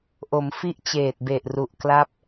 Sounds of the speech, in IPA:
ʔ o˩˦ m f i˥˩ ʔ t͡ɕ eː˨˩ t̚ b e˨˩ ʔ r u˨˩ ʔ k l a˥˩ p̚

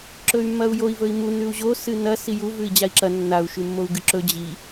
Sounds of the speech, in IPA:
ǁ ɵ y̯ mː ɐ u̯ j o i̯ v ɵ i̯ m u n ʉ u̯ ʑ o s ɨ n ɐ s i j u v ʉ i̯ d͡ʑ a i̯ ǁ ɐ nː a u̯ ʃ ʉ mː o u̯ ɡ ɨ ǁ ɵ d͡ʑ i

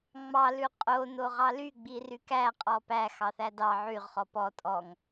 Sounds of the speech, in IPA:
ŋ͡m ɑ l ʉ qʼ o n o ʁ ɑ l y ɡ͡b i r y k æ qʼ ɔ p æ x ɑ θ æ d ɑ ʕ y ʁ χ ɔ p ɔ tʼ ɔ ŋ

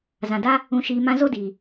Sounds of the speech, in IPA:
z ã˨ d a˦ | ũ˨ ʃ iː˨ m ã˧ z o˦ d iː˨

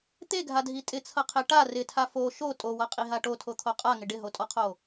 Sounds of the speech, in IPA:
t̪ e ɡʱ a dʱ i tʼ ɪ t͡sʰ ʌ qʰ e ʈ a r ɪ tʰ a f o ʃ o tʼ o w ʌ qʼ i ɦ a ʈ o tʰ o t̪ʰ o qʼ a ŋ ɪ ɖ ɪ ɦ o tʼ ɔ qʰ o

